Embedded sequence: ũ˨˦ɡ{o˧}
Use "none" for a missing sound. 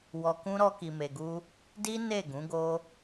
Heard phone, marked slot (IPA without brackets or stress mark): o˦